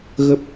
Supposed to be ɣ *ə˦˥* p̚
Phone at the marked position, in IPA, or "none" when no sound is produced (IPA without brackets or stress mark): ə˦˥